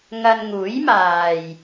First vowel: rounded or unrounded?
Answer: unrounded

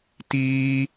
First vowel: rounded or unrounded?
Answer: unrounded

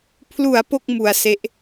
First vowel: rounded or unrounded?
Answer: rounded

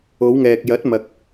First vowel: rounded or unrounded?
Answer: rounded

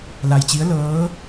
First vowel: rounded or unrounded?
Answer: unrounded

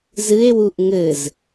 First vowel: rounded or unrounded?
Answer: unrounded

